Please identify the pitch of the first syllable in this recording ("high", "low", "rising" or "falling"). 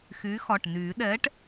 rising